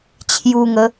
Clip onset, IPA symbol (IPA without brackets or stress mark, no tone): t͡ɕʰ